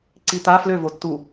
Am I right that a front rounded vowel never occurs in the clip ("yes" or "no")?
no